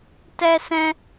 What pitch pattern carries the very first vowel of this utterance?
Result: high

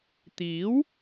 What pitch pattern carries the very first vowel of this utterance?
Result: rising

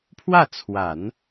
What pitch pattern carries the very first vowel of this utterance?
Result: falling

